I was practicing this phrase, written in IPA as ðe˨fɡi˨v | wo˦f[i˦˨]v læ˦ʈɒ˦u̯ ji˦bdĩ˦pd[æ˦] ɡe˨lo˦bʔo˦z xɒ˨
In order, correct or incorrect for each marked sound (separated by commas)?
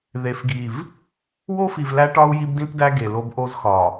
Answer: incorrect, correct